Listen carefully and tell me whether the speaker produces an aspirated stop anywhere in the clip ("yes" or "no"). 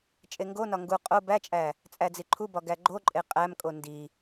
yes